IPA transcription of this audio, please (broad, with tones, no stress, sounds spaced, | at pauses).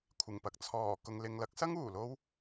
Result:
kʷʰ ɪ˨˩ ŋ p ɐ˨˥ k̚ t͡sʰ ɔː˨˩ k ʊ˨ ŋ l ɪ˨ ŋ l ɐ˨˥ k̚ s ɐ˥ ŋ uː˨˩ l o˥ w